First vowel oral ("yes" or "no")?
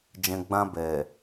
no